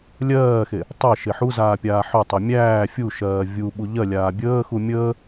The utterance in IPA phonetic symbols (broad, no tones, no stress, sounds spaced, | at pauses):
lʲ ɜː x e | tˤ ɛ ʃ e ħ u z aː pʲ aː ħ œ tˤ œ mʲ æː fʲ u ʃ ɜː vʲ u ɓ u ʎ ɜ lʲ aː bʲ əː x u mʲ əː